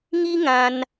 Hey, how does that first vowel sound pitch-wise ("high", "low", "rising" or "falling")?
high